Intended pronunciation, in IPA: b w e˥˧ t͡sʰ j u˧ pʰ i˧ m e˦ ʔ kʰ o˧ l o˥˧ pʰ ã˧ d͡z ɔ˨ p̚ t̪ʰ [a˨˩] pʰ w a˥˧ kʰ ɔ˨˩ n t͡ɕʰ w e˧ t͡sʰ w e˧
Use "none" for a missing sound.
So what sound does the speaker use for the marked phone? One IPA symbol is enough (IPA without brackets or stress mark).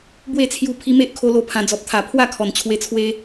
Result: a˨˩